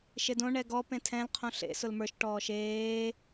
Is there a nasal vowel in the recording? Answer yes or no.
yes